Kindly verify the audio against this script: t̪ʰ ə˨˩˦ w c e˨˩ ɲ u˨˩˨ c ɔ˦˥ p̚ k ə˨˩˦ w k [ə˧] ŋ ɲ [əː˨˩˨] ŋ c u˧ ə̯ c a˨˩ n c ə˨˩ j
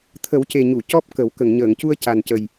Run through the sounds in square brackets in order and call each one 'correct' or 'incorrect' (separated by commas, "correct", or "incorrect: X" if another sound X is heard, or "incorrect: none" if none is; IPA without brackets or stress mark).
incorrect: ə˨˩˨, correct